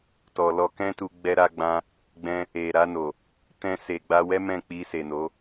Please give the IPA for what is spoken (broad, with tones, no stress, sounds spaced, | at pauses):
t ɔ˨ l ɔ˧ k ɛ̃˦ t u˧ ɡ͡b ɛ˧ ɾ a˧ ɡ͡b ã˧ | ɡ͡b ɛ̃˧ | e˨ ɾ a˧ n o˨ | t ɛ̃˧ s e˨ ɡ͡b a˧ w ɛ˦ m ɛ̃˦˨ k͡p i˧ s e˨ n o˨˦